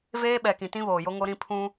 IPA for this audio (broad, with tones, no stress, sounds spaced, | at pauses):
v eː˦ ɓ ɛ˨ k ĩ˨ t ĩ˦ β oː˨ j o˦ ŋ o˦ ɾ ĩ˦ pʰ ũ˦